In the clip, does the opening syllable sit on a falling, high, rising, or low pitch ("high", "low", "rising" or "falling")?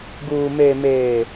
low